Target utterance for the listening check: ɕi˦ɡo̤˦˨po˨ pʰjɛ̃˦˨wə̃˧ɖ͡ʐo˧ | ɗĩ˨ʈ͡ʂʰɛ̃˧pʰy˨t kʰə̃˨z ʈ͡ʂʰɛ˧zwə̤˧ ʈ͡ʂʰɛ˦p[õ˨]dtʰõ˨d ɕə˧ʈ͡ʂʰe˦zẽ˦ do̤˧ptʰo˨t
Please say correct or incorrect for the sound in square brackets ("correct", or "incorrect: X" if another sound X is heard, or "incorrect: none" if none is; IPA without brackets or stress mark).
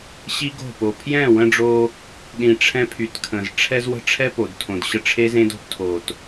incorrect: o˨